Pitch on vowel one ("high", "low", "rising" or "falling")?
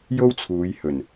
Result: high